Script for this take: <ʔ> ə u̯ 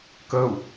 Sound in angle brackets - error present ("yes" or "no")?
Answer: yes